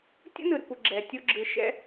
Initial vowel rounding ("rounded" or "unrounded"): rounded